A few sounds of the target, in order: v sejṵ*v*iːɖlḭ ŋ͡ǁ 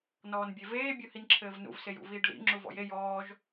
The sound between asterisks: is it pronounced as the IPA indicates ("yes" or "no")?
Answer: yes